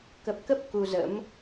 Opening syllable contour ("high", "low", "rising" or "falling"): low